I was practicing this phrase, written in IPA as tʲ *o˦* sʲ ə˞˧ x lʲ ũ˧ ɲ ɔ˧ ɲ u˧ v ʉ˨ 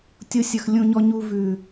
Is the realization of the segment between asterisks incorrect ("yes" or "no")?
no